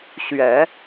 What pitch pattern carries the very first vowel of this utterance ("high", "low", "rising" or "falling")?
low